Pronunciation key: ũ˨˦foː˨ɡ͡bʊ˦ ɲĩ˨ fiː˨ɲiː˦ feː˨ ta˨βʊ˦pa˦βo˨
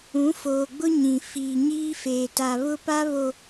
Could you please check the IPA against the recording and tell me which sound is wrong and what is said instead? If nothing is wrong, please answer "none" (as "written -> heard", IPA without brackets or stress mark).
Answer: none